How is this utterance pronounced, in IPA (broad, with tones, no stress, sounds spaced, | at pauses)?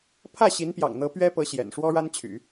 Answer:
pʰ ä˥˩ ɕ i˧˥ n p j ɑ̰˨˩ ŋ n̪ ɤ˧˥ p ɥ ɛ˥ p ɤ˧˥ ɕ j ɛ̰˨˩ n ʂ w ɔ˥ ɻ a˥ n t͡ɕʰ y̰˨˩˦